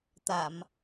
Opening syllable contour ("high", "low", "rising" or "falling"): low